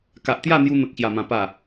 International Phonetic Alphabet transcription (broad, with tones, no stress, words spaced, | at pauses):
ka˨ʔt̪ja˥˧n̪ju˧ n̪ə˨k̚ɕja˨˩mã˨˩ pa˨˩